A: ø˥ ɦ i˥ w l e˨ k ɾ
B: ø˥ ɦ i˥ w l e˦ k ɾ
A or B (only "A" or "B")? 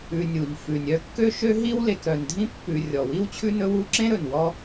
A